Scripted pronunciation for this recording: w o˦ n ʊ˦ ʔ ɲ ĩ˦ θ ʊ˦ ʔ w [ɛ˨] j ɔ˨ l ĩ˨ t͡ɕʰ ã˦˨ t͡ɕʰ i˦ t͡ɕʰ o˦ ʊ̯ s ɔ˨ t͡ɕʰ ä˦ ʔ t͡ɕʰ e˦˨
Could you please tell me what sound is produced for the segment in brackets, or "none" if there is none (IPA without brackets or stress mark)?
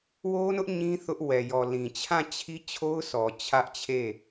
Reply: ɛ˨